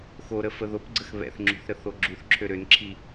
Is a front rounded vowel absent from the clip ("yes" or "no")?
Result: no